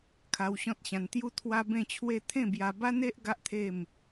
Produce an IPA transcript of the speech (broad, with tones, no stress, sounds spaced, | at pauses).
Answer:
kʰ a˧ w ɕ ɔ̃˦ t̚ ɕ ã˧ n t̪ j u˥˧ t̪ʰ w a˦ b ẽ˥˧ t͡ɕʰ w e˥˧ t̪ʰ ẽ˥˧ b j a˧ b a˦ n e˦ ʔ ɡ a˦ ʔ t̪ʰ e˥˧ m